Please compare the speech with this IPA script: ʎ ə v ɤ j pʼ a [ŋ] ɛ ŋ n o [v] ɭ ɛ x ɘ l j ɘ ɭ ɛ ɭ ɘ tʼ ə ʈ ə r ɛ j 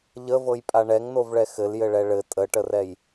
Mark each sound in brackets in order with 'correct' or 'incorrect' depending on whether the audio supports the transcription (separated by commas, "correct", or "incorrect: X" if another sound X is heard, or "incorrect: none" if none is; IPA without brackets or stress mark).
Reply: incorrect: ɳ, correct